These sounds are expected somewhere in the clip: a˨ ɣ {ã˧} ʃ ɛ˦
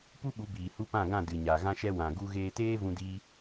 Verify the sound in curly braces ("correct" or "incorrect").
incorrect